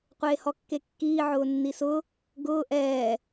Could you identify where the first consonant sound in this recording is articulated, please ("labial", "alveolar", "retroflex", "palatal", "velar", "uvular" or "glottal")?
uvular